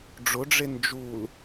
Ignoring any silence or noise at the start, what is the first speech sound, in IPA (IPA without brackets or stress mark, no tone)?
ɖ͡ʐ